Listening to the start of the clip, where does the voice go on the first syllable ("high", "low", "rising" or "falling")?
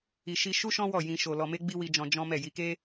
low